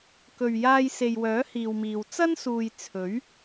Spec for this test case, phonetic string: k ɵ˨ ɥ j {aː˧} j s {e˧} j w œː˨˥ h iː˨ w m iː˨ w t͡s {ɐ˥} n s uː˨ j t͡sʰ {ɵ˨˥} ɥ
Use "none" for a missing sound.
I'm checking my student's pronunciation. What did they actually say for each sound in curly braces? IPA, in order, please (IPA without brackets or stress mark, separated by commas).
aː˧, e˨, ɐ˥, ɵ˨˥